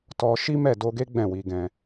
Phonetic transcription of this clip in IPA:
t ɔ˧ ʃ i˦ m ɛ˦˨ d o˧ ɡ e˦ ɡ͡b ɛ̃˦˨ w i˧ ɡ ɛ̃˧

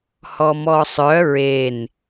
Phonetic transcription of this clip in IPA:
h ɔ m ɔ sˤ œ ɹ e n

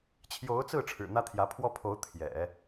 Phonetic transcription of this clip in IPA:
t͡ɕʰ j o˧˥ ʊ̯ t͡s ɹ̩˥˩ ʈ͡ʂʰ ɻ̩˨˩ n̪ ä˥ t̪ʰ j ä˧˥ pʰ w ɔ˥ pʰ o˧˥ ʊ̯ t̪ʰ j ɛ̰˨˩˦

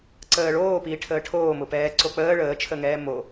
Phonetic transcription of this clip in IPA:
ǀ əː ɭ oː p iː ʈʰ əː ʈʰ oː m ʊ p ɛː ǀ o k͡p əː ɭ əː t͡ʃʰ ə ŋ ɛː m o

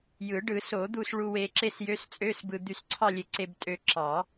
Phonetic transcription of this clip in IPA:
j ɯ˨˩˦ ɖ ɯ˨˩˦ s o˨˩˦ d̪ u˧ s ɭ u˧ w e˧ ǁ e˥˧ s j ø˧˥˧ s t͡sʼ ø˧˥˧ s b ɯ˧ d̪ y˧ s ǀʰ ɑ˥˧ lʲ e˧ ǀ e˧ b tʼ ø˧ ǁ ɑ˨˩˦

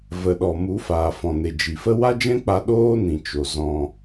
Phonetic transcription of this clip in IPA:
v ə˨ ɗ ɔ˨ m u˨˦ f aː˨ f ɔ̃˨ n e˨ d͡ʒ i˨ f ə˦ w a˦ d͡ʒ ɛ̃˦ k͡p a˧ ɗ oː˦ n ĩ˨ t͡ʃ o˨ z ɔ̃˧

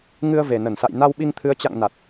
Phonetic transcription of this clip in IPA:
ŋ ɨ˧ ə̯ v e˨˩ n ə˧˩ n s a̰˧˨ j n a˧ w ɓ i˧ ŋ t̪ʰ ɨ˨˦ ə̯ t͡ɕ a̰˧˨ ŋ n a˨˩ t̚

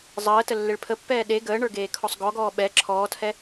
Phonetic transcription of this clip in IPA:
zˤ əː t ə lː e ɭ pʰ ə pː ɛː ɗ e ɡ əː ɳ ə˞ ɡ eː kʰ ɔ sˤ ɡ ɔ ɡ ɔː ɓ ɛ ǁʰ ɔː tʰ ɛ

